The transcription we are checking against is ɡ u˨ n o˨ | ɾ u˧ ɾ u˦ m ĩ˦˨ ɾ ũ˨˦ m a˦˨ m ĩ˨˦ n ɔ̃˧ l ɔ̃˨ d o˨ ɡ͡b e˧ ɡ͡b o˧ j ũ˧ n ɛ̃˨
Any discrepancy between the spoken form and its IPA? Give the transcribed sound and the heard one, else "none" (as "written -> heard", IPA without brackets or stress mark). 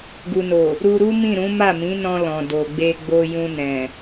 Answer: none